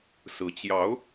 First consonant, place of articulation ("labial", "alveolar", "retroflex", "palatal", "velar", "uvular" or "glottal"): alveolar